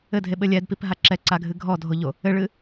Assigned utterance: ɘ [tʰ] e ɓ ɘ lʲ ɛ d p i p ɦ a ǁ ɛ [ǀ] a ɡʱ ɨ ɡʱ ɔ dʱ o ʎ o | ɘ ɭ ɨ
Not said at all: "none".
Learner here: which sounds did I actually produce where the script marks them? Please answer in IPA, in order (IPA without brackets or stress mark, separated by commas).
dʱ, ǀ